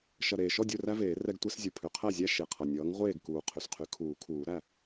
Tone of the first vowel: low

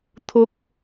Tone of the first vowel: high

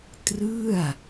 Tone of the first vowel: falling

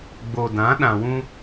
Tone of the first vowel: low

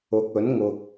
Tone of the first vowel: rising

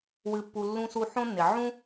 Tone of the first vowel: low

